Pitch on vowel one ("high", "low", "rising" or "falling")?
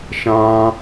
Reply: high